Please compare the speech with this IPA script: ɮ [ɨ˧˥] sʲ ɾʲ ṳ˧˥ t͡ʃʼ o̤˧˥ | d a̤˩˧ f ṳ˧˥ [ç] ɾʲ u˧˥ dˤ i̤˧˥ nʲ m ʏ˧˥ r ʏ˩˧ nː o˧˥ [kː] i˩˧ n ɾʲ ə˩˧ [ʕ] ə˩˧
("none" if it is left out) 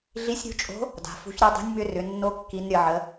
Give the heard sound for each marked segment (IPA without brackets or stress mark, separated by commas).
i˧˥, ç, kː, ʕ